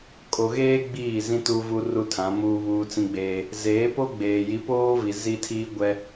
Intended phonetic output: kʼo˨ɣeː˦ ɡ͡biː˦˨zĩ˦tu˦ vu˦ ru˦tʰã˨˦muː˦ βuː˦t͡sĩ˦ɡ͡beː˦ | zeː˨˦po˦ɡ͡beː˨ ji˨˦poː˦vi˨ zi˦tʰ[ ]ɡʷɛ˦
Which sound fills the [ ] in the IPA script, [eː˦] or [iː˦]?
iː˦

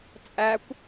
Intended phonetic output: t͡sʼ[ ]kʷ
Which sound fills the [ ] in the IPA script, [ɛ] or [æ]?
æ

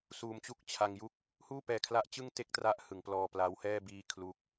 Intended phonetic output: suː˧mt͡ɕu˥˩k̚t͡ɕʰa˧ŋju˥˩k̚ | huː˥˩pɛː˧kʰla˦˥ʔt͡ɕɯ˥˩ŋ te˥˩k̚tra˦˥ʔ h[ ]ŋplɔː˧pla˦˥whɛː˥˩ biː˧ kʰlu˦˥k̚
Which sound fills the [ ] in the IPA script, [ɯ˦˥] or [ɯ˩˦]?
ɯ˩˦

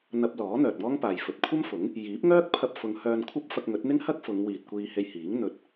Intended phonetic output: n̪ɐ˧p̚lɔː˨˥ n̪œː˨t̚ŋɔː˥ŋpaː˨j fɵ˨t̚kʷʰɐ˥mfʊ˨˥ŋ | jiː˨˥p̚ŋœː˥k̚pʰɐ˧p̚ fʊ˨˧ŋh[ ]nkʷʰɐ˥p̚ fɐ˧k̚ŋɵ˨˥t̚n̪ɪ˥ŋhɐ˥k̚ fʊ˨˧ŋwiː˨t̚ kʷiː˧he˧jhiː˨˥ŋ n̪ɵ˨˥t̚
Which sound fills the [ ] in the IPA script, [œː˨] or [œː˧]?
œː˧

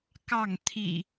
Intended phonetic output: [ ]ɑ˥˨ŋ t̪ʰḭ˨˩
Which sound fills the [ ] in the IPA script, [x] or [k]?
k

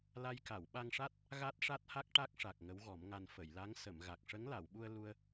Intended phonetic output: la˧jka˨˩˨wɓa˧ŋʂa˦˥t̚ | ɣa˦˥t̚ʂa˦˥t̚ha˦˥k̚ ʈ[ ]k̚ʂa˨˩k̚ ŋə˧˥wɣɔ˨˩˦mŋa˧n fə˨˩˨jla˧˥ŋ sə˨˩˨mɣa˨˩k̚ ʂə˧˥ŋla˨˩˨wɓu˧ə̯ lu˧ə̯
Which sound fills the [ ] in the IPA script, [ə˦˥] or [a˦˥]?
a˦˥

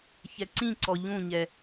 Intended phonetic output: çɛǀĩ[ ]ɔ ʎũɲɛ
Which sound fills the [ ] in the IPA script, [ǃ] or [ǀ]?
ǀ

